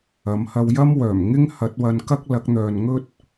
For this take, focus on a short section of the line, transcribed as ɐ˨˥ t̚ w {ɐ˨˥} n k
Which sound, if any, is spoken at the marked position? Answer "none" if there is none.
ɐ˧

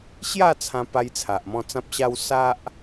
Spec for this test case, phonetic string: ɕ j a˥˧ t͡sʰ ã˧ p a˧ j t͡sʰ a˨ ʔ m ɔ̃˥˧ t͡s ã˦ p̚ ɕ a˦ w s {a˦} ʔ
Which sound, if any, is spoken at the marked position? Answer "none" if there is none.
a˦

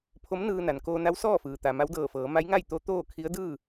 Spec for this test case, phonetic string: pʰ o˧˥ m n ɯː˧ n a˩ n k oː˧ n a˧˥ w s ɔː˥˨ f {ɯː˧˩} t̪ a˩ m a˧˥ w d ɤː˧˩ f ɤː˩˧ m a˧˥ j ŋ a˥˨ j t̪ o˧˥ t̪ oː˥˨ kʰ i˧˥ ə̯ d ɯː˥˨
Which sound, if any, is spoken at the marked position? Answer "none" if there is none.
ɯː˩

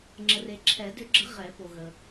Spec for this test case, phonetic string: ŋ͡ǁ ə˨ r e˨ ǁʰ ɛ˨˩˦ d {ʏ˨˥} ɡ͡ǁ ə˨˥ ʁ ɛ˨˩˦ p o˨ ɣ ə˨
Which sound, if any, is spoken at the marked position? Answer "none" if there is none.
ʏ˨˥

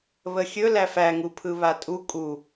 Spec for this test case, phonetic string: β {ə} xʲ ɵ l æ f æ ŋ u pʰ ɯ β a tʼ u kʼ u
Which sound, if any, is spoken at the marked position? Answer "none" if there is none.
ə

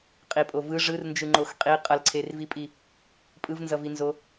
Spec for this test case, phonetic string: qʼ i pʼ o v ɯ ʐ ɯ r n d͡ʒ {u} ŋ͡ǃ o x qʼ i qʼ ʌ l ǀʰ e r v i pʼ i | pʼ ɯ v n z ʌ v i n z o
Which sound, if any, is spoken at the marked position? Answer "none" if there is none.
ɯ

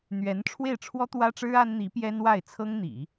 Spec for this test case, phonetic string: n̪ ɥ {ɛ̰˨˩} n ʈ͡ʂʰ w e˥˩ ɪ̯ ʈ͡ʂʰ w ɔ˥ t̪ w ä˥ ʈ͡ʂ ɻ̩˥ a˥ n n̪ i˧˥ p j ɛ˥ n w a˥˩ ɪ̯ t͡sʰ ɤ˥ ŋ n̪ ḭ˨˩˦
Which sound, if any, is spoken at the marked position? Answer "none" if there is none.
ɛ˧˥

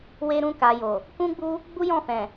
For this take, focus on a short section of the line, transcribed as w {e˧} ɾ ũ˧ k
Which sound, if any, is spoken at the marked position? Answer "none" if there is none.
e˧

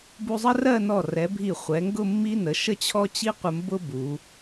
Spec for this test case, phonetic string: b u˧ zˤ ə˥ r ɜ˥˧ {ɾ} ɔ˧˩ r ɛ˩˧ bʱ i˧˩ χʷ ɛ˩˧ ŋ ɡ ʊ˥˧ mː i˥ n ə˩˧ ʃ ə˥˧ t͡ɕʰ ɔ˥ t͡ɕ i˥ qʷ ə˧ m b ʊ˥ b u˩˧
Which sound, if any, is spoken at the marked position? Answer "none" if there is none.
n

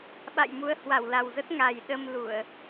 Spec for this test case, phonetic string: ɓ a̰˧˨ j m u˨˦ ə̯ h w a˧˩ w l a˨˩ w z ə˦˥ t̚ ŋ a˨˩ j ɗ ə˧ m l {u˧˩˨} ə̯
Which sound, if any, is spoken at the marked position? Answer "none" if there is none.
u˧˩˨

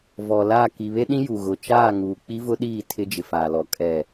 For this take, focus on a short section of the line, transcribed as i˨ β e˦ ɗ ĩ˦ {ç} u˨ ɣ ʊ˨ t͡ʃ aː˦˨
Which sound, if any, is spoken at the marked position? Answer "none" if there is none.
j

